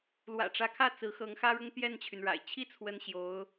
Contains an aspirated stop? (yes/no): yes